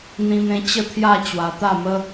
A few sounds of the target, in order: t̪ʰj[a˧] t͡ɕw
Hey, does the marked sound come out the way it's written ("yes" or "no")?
no